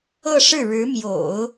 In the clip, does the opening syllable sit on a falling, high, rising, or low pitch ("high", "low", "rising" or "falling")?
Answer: falling